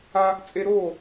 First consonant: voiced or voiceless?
voiceless